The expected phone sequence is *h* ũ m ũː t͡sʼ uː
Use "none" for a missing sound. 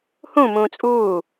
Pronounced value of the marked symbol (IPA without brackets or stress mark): h